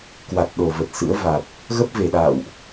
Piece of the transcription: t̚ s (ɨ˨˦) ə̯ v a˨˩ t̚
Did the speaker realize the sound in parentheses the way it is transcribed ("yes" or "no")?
no